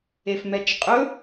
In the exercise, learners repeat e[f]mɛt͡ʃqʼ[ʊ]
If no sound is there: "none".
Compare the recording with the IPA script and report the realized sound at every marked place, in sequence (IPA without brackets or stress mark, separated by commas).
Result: f, ɵ